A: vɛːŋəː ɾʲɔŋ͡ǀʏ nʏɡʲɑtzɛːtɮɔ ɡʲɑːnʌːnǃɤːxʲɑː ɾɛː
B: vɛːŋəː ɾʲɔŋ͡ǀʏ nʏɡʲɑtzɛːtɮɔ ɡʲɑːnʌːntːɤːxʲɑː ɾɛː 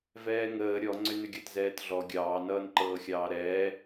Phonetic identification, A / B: A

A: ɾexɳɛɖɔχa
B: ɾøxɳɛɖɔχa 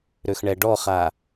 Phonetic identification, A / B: B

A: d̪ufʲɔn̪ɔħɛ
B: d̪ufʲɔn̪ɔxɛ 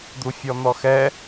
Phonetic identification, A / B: B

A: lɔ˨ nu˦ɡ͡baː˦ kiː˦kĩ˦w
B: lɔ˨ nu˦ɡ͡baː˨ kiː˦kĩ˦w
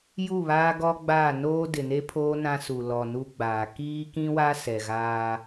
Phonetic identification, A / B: B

